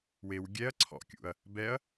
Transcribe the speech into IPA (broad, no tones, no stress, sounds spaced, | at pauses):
w e w ɡʲ ɛ ɐ̯ ǀʰ ɔ̰ kʲ ṵ ɐ̯ | b ɛ ɐ̯